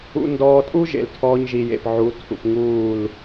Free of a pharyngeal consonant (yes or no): no